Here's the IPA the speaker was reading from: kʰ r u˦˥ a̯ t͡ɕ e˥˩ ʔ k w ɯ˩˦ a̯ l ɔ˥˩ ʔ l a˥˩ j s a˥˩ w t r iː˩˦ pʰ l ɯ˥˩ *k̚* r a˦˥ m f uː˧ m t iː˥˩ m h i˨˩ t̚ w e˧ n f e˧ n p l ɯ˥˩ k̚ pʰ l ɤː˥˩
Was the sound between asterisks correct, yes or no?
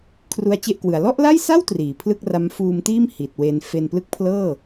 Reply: yes